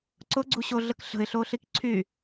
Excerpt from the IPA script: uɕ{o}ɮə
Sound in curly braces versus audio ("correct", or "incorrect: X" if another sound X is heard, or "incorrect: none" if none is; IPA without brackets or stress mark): correct